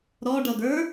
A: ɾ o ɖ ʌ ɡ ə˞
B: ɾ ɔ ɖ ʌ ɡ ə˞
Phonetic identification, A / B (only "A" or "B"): B